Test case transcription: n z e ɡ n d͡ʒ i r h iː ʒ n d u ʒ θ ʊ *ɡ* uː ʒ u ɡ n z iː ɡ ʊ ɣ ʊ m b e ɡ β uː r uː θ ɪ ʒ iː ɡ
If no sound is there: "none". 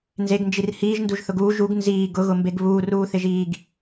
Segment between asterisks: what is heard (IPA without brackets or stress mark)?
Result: ɡ